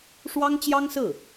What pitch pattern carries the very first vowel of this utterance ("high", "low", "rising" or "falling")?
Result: high